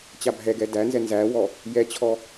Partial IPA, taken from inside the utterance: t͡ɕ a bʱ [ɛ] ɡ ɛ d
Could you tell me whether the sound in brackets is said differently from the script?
no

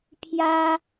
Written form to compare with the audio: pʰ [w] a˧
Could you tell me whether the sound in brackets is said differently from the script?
yes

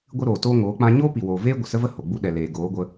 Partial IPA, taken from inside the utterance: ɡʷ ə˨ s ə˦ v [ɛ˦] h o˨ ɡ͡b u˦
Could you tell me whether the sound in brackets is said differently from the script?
yes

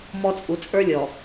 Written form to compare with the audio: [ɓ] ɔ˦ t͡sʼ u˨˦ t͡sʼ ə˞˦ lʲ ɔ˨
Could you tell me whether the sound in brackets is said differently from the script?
yes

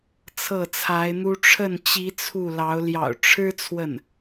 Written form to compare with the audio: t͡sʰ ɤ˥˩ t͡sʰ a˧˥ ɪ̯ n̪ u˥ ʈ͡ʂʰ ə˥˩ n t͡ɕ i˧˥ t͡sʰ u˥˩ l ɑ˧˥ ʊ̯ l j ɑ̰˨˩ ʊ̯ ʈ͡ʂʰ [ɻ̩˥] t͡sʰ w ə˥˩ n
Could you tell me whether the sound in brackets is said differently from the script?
no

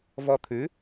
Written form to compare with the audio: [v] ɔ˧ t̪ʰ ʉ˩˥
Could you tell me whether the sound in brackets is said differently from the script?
no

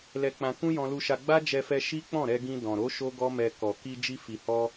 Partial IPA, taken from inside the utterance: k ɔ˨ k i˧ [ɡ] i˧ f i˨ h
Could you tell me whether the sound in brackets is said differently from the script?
yes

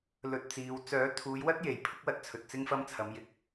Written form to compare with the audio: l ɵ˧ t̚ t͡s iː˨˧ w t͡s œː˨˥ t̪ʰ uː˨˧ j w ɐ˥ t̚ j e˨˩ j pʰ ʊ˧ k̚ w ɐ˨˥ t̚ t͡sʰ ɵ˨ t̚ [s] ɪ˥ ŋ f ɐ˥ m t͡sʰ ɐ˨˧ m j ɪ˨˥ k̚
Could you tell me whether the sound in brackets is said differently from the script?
yes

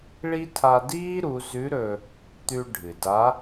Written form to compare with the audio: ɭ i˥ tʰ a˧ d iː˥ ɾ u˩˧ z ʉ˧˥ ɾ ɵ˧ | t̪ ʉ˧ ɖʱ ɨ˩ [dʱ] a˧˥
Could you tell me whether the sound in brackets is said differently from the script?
yes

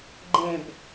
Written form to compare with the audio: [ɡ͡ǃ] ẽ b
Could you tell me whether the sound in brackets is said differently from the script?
no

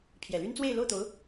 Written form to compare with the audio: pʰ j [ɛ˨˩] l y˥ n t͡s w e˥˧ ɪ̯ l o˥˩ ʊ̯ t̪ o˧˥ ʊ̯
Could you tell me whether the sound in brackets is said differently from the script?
no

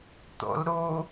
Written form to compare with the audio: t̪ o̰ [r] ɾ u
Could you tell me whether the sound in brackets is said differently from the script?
yes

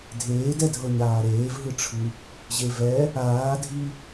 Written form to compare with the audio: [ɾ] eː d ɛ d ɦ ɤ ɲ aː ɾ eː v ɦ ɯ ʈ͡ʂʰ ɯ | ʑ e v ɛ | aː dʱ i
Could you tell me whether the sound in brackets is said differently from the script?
yes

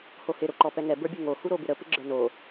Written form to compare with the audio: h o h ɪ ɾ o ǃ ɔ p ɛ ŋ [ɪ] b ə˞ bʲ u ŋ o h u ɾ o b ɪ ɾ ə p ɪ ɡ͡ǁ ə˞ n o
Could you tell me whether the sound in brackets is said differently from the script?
yes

